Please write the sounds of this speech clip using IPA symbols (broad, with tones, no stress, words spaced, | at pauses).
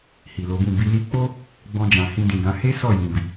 hi˨lo˨˦bũ˦˨ bi˧li˦ k͡po˦ | ɡ͡bɔ̃˧d͡ʒã˨ hĩ˧dĩ˨ɡã˨˦ he˦ sɔ˦˨jĩ˨bi˨